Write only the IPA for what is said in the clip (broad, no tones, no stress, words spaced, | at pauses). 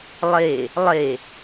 lˠe | lˠe